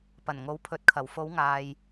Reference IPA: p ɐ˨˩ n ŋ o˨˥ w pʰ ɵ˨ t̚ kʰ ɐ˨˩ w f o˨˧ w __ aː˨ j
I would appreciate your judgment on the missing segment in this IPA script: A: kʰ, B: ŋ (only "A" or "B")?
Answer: B